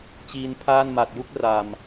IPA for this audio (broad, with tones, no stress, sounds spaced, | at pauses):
t͡ɕ iː˧ n pʰ aː˥˩ n m a˨˩ t̚ j u˥˩ k̚ r a˨˩ m